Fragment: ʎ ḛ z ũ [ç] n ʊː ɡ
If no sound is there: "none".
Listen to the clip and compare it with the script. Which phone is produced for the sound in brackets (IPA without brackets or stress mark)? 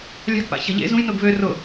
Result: j